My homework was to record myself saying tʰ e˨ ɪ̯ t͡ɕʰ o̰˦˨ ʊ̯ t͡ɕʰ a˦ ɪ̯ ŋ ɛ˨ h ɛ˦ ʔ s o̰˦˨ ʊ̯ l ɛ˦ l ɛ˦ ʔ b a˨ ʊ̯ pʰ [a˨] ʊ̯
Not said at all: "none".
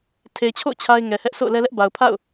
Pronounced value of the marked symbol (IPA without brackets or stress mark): a̰˦˨